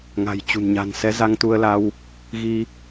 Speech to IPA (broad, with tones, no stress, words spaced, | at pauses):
ŋa̤˨˩jt͡ɕṳ˨˩nɲa̤˨˩n sɛ˨˦za˧ŋt̪u˧ə̯la˧w | ɣi˧